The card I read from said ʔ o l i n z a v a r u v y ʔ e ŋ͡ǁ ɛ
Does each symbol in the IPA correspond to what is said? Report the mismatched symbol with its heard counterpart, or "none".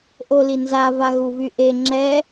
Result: r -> ɣ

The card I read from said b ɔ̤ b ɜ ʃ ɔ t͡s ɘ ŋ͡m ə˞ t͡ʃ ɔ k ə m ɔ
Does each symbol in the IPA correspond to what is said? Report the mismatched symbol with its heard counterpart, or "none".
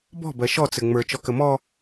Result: none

